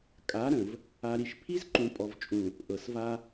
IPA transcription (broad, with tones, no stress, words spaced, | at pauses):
kʼa˨˦ɾə̃˨v | a˨ɾi˨ʃ pʰi˦zǃũ˨ pʼɔ˨vt͡ʃʼũ˨ | ʔɤ˨sva˦